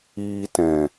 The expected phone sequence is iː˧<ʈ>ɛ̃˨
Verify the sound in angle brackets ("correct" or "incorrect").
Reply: incorrect